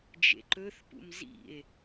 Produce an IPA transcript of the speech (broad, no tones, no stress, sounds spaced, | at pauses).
d͡ʒ ḛ ǃ ɵ θ p ṵ m z ḭ e̯